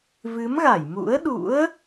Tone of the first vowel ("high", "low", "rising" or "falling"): rising